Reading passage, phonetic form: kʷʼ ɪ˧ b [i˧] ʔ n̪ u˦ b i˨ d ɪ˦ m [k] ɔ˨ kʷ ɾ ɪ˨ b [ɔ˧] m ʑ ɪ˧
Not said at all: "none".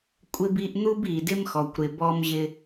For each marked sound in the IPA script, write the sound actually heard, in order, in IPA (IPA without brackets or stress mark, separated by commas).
i˧, x, ɔ˧